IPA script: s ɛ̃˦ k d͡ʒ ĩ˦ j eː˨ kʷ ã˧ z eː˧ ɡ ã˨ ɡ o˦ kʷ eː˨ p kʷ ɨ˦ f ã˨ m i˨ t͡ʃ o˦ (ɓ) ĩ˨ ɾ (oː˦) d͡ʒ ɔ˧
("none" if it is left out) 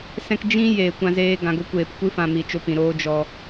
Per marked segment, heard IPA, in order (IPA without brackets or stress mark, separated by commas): p, oː˦